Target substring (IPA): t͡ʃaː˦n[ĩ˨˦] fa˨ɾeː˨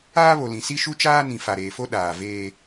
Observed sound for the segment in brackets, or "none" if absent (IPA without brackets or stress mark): ĩ˨